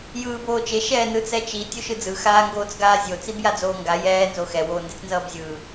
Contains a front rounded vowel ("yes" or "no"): no